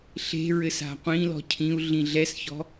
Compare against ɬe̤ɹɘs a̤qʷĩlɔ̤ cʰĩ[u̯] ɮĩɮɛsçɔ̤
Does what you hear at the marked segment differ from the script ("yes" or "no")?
no